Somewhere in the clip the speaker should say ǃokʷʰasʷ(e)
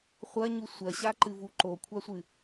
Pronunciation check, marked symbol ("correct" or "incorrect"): incorrect